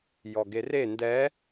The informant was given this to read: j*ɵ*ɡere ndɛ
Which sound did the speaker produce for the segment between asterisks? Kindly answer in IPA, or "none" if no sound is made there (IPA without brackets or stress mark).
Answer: ɔ